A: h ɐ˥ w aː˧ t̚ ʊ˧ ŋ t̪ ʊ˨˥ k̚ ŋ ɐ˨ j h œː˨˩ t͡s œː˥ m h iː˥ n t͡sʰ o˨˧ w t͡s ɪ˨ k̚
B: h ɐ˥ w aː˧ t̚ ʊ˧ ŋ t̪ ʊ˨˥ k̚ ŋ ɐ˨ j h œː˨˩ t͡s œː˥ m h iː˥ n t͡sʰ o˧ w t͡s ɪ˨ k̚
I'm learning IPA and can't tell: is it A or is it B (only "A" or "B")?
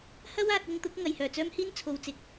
A